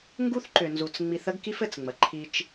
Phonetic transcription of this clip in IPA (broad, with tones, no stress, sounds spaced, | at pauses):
ŋ ɡ u˦ θ ǃ ʏ˨ n z u˨ t͡s ŋ͡m i˨ θ ə˦ ɡ k i˦ f ɘ˨ t͡s ŋ͡m ə˨ ǃʰ i˦ t͡ʃ